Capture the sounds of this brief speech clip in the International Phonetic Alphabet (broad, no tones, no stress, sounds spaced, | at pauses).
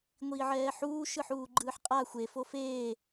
ŋʷ iː ʕ ɛː ħ uː ʃ ɯ ħ uː ɡ͡ǃ ɯː ħ qʼ a xʷ e f o f eː